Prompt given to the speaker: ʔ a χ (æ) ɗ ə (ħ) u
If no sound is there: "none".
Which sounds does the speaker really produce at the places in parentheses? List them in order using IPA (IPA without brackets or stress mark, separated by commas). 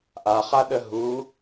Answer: a, ɦ